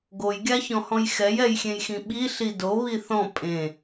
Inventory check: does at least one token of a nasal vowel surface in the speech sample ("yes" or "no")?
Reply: yes